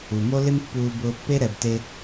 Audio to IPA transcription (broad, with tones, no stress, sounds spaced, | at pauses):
u˨ m o˦ l ɪ˦ m pː uː˧ b ʊː˧ pː e˦ ɾ ɛ˨ b t e˧